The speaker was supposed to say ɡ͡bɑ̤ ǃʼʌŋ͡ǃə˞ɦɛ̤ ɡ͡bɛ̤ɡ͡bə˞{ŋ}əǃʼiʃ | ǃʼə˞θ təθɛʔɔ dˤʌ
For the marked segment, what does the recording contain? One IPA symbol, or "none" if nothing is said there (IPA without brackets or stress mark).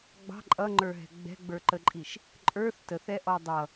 ǃ